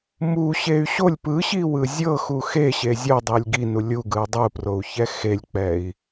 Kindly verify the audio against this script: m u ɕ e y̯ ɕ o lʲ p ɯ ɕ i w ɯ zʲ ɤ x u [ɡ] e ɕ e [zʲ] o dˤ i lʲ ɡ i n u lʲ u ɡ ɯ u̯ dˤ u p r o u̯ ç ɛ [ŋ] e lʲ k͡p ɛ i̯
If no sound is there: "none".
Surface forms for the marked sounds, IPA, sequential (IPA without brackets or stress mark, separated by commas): x, zʲ, x